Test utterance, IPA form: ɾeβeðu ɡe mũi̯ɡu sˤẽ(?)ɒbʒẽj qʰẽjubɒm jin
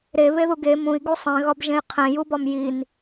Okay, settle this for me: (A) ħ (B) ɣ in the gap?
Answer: B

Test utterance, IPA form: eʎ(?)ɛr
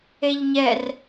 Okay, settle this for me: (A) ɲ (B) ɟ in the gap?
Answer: A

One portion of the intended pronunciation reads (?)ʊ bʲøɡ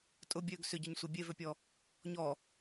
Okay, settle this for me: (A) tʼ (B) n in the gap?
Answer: A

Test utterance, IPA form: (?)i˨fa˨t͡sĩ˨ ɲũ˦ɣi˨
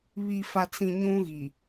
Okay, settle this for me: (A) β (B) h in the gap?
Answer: A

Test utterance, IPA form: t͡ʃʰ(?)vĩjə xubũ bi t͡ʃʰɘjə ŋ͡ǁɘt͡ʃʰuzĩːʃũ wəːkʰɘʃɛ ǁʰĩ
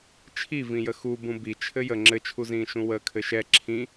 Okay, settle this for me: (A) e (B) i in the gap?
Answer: B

